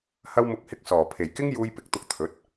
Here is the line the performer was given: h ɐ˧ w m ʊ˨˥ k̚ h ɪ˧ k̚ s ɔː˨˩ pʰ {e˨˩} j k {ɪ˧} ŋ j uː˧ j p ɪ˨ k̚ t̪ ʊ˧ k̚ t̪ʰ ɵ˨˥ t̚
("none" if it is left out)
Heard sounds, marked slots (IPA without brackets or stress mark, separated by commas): e˨˩, ɪ˥